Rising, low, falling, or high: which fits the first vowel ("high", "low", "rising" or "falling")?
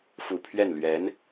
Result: low